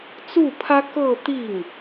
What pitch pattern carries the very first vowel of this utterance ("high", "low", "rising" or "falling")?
falling